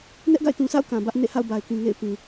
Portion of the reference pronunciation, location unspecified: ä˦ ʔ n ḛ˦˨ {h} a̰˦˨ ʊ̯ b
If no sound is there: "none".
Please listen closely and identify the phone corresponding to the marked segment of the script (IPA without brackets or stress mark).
h